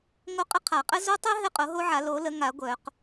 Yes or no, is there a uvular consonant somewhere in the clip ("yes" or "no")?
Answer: yes